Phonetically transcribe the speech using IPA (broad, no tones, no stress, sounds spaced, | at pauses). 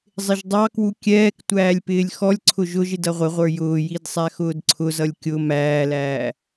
zˤ ɪ ʒ dˤ ɑ k w u kʲ ɛː k tʷ æː lʲ p ɪː lʲ x ɔ lʲ ǀʰ ʊ ʒ ʊ ʒ ɪ d ʌ ʁʷ ɪ ʁʷ ə˞ j ʊː j i d sˤ æ x ʊː d ǀʰ ʊ z ʌ lʲ kʲ ʊ m æː l æː